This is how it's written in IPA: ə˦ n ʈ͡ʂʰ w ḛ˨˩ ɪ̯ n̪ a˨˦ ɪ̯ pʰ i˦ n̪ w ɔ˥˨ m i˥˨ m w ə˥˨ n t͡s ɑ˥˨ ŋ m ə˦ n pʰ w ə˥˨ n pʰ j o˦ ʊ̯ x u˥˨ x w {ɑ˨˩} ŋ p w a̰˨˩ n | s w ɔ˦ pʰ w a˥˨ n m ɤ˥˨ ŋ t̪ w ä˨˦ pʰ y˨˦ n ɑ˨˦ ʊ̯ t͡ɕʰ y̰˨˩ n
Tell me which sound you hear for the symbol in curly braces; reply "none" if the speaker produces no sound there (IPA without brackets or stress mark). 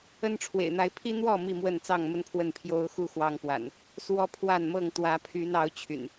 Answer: ɑ˦